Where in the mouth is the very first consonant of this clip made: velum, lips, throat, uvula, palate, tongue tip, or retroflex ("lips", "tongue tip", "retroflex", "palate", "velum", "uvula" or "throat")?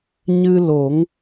palate